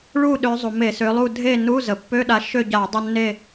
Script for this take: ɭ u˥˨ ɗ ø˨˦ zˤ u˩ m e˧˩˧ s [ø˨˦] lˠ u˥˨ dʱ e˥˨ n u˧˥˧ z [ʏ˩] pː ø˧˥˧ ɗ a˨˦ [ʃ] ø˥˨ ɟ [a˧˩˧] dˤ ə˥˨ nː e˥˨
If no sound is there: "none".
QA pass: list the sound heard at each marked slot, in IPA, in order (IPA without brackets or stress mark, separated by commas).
ø˨˦, ə˩, ʃ, a˧˩˧